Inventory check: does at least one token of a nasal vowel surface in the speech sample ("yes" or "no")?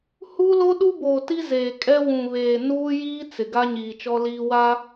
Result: yes